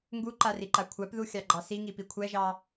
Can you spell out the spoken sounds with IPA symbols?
ŋ ɡ u ǃ a r i ǃ a kʷʰ a p ð u xʲ ɑ ɡ͡ǃ ɑ s i ŋ i p i kʷʰ ɛ ʒ ɑ

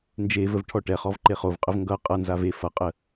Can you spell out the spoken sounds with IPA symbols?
n d͡ʒ e v ə v ʈʰ ɔ ʈ ɛ χ ɔ v ǃ e χ o v qʼ ə v ŋ ɡ ʌ qʼ ʌ n z a v e f ʌ qʼ ə

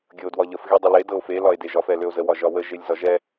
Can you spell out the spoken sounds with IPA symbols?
ɡʲ ɤ o̯ d w ɒ ʎ ə f ɣ e dˤ ə l e d ɤ o̯ f e l ɒ e̯ d e ʒ ɒ f ɛ l ø o̯ z ə w ɒ ʒ ɒ w ə ʒ e lʲ z ɒ ʒ ɛ

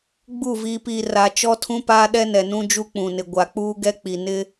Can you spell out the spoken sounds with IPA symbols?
ɡ͡b u˦˨ v iː˨ p iː˨ r a˨ t͡ʃ ɔ˦ tʰ ũ˦ p aː˦ ɗ ɛ˦ n ɛ˨ n ũ˦ d͡ʒ u˦ k͡p ũ˨ n ɪ˨ ɡʷ a˨ k͡p uː˦ ɡ ɛ˦ k͡p i˨ n ɪ˦

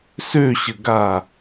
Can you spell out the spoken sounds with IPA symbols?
s ø ɕ ə ɡ a

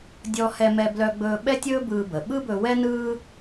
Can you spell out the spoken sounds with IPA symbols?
dʲ ɔ˧ h ɛ˧ m ɛ˧ b l œ˧ ɡ͡b ɵː˧ ɓ ɛ˥ tʲ ɵː˥ b ɯː˧ b ə˩ ɓ ɯ˥ b ɵ˧ w ɛ˥ n ɯː˥

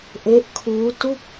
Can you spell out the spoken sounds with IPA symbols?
ʔ e˦˥ ʔ kʰ uː˦˥ t u˥˩ k̚

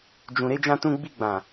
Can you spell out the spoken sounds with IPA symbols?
d͡ʒ ũ˧ ɾ e˧ d͡ʒ ã˧ t ũ˧ ɡ͡b i˧ ɡ͡b ã˨

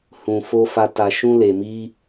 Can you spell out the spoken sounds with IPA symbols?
h ũ˧ f o˦ f a˦ t a˧ ʃ ũ˦ l e˧ m i˦

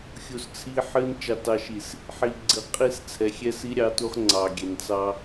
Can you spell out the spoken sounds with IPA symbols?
xʲ u˨ s t͡sʰ i˦ ħ ɨ˦ n t͡ʃ ɑ˨ t ɑ˨ ʃ i˨ s | ħ i˨ ɡ͡ǀ ɨ˨ qʼ i˦ s t͡sʰ ɛ˨ xʲ ɛ˦ s i˦ ɾʲ ɑ˦ t u˦ χ ŋ͡ǀ ɑ˨ ɡʲ ɛ˨ n t͡s ɑ˦

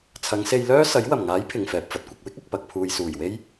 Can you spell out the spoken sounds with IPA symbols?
t͡sʰ ɐ˨˧ ŋ s e˧ j l œː˥ s ɐ˨˥ j w ɐ˨˩ m ŋ aː˨˥ j pʰ ɪ˨ ŋ f ɛː˨ p̚ f ɐ˨ t̚ kʷ ɐ˧ k̚ w ɪ˥ k̚ ɐ˨ k̚ p ɐ˨ k̚ pʰ uː˨ j s uː˨˩ j w e˥ j

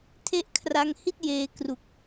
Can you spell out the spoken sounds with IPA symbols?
tʰ e˦˥ ʔ kʰ r a˧ ŋ h i˥˩ t̚ j eː˧ k r u˨˩ k̚

